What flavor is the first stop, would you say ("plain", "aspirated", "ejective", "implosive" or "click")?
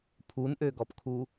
aspirated